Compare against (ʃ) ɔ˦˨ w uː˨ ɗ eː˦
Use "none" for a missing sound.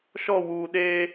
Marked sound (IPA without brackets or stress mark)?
ʃ